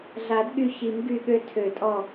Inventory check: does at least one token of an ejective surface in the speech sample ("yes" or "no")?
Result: yes